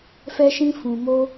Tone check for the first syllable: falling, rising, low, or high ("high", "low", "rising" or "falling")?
high